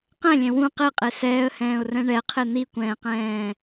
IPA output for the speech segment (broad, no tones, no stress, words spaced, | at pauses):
qɛ̃lʲɛ̃ wũ qeqʼe sɛːə̯hɛ̃ːʊ̯rɛ̃ ɳɛqʰe n̪ikʷɛ̃ːqɛ̃ː